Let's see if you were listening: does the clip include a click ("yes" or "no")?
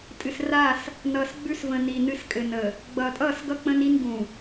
no